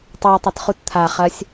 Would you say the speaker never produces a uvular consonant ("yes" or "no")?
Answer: no